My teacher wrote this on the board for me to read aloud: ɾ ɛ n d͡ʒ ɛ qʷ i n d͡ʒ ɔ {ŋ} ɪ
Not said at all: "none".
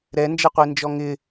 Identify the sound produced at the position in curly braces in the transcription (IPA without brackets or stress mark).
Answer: ŋ